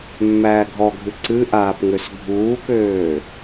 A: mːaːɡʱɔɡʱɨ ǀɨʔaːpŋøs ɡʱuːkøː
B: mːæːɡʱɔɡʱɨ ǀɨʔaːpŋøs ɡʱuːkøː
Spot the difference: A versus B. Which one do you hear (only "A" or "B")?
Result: B